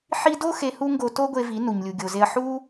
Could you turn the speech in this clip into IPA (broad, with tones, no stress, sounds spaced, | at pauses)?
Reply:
ħ i˧ d o˦ x e˧ h u˦ ŋ ɡ o˧ t o˦ ɡʷ e˧ v i˨˦ n u˨ ɲ lʲ u˨ ɡʲ o˨ z e˧ ɐ̯ ħ u˦